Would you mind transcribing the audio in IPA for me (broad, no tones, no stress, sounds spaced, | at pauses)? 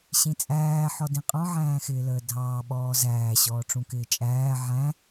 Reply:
ɕ ĩ t͡sʼ æː ħ ɔ d ĩ qʼ ɔ̃ ʕ æ̃ː x ɪː l əː dʱ ɑː ɓ ɔː z æː ɕ ɔː ʈ͡ʂ ũ k ɪː t͡ʃʼ æː ʕ æ̃